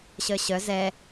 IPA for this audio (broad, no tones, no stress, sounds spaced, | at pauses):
ɕ œ ɕ œ z ɛ